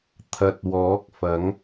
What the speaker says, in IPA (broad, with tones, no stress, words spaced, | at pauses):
t̪ʰɐ˨t̚wɔː˨˥k̚fɐ˨˥ŋ